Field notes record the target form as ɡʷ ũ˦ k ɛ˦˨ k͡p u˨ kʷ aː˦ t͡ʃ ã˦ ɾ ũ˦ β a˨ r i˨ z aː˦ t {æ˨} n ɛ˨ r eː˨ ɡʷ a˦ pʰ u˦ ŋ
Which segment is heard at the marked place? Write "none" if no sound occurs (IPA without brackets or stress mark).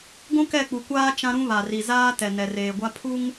ɛ˨